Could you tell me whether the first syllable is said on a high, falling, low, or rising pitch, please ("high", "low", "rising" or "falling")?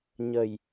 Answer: low